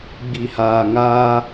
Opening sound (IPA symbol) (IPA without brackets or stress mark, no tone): ɡ͡b